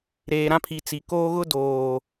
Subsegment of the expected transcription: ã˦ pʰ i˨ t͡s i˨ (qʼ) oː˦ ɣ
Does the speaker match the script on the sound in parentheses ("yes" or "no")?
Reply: no